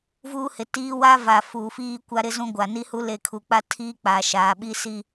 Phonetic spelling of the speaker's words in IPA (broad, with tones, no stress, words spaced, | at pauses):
vuː˦hɪ˨tiː˦ wa˦va˨ fuː˨fiː˦kʷa˦ ɾɪ˦zũ˦ ɡʷa˨ni˦hu˦ le˦˨ kʰu˨k͡pa˦ tʰiː˦k͡paː˨ʃaː˨ɓi˦ si˦